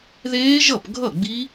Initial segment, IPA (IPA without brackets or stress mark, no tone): ð